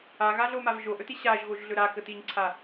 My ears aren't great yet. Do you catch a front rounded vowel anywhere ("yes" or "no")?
no